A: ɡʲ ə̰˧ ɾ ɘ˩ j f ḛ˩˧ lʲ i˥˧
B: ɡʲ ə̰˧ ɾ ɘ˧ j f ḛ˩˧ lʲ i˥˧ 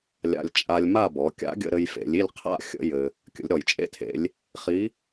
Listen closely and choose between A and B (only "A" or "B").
B